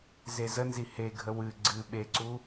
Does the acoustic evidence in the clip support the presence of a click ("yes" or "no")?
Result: yes